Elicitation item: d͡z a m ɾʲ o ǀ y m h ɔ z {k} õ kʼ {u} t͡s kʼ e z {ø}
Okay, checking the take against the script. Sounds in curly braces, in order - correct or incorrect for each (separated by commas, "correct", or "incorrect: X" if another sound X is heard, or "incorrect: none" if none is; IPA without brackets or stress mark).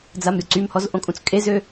incorrect: ʔ, incorrect: ũ, correct